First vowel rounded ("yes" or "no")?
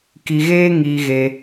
no